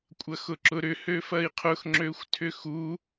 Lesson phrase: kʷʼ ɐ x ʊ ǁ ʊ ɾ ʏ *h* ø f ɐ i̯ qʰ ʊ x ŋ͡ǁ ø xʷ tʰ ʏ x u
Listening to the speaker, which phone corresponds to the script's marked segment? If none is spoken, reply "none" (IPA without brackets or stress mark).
h